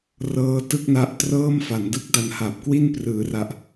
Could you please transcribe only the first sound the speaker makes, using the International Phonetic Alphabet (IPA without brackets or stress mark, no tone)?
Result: r